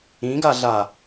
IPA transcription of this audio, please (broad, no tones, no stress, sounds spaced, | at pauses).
ĩ ɡ a ɮ a